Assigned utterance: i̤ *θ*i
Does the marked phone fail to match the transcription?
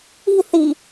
no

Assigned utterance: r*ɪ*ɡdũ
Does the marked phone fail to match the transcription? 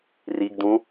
yes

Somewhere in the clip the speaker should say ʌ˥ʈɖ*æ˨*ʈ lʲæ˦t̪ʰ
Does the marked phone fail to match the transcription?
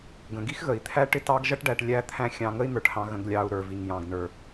no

